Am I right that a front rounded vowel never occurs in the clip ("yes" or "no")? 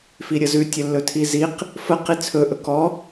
yes